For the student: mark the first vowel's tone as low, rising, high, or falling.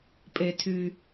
low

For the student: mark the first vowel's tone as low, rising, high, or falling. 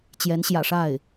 rising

